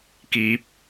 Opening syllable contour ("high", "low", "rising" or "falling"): low